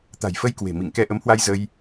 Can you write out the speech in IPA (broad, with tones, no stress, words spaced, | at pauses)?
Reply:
t̪a̤˨˩jfə˧jkwe̤˨˩ mḭ˧˨ŋkɛ˧ ʔə˨˦mhwa˧jzə˧j